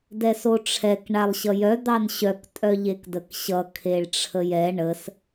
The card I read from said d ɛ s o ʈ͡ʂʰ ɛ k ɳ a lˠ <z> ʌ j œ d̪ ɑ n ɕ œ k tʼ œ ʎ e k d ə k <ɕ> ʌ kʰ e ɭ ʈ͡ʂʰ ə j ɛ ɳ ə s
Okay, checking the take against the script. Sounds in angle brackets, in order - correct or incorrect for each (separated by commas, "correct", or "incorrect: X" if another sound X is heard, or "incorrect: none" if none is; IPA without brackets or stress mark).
incorrect: ɕ, correct